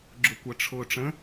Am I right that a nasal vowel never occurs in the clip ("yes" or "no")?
no